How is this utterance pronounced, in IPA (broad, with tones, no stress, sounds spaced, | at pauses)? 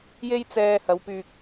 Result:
j e˥ j t͡s ɛː˧ h ɐ˨˧ w p yː˧ k̚